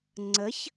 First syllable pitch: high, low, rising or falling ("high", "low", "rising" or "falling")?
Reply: rising